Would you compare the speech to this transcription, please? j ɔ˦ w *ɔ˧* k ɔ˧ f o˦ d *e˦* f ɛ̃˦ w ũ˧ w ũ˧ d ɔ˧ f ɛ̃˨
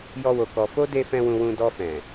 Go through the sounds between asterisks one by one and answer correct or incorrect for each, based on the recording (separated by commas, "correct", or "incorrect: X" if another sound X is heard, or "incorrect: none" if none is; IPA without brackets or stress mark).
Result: incorrect: o˧, correct